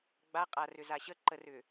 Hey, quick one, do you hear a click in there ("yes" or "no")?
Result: yes